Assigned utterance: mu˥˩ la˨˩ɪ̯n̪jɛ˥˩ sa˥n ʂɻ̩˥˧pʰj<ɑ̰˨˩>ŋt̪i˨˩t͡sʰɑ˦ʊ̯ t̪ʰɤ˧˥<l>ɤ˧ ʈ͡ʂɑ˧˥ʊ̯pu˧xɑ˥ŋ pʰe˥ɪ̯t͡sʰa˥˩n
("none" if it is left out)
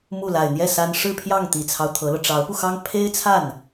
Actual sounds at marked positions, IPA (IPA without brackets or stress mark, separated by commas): ɑ˥˩, l